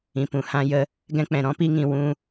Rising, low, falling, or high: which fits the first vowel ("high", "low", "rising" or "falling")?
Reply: low